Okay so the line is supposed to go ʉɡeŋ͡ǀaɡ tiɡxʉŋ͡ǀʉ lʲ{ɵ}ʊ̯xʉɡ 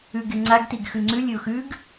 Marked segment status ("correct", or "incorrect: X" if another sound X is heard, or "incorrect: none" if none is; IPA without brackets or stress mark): correct